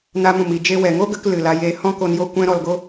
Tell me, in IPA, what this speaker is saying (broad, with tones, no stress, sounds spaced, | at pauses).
n a˧ m ũ˨ m i˨ d͡ʒ e˧ w ɛ˨ ŋ o˦ ɡ ə˨˦ k l ɨ˨ l a˧ j eː˧ h ɔ̃˦ k o˧ n j o˦˨ kʷ ɛ̃˦ ɾ ɔ˧ l ɡ o˦